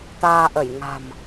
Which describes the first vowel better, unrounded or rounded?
unrounded